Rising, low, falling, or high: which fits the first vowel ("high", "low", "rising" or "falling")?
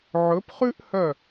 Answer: rising